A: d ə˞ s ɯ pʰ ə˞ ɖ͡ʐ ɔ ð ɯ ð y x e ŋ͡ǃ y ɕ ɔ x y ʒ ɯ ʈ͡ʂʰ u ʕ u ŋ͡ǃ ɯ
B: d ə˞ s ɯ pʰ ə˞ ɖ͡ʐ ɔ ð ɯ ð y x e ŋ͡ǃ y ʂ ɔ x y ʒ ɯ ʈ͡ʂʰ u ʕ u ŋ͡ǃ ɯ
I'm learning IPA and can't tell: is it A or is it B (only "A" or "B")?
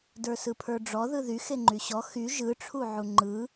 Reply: A